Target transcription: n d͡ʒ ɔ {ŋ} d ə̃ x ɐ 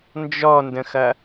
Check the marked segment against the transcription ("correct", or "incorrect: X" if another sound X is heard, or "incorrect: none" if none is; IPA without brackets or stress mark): incorrect: n